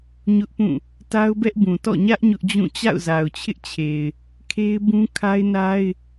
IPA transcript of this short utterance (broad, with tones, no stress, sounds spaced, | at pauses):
ɲ ʊ˦ ʔ p ũ˦˨ | t a˦ ʊ̯ b ɛ˦ ʔ b ũ˨ t ɔ̰˦˨ ɲ ä˦ ʔ ɲ ʊ˦ ʔ d͡ʑ ũ˦˨ t͡ɕ a̰˦˨ ʊ̯ z a˨ ʊ̯ t͡ɕʰ ɪ˦ ʔ t͡ɕʰ e˨ ɪ̯ | kʰ e˦ ɪ̯ b ũ˦ kʰ a˦ ɪ̯ n a˦ ɪ̯